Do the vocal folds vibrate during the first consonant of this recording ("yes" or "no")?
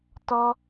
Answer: no